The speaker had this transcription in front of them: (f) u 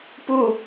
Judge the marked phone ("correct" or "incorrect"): incorrect